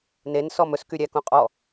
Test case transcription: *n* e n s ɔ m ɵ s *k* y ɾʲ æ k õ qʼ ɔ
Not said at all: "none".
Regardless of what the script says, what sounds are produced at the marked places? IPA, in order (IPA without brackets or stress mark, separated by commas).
n, k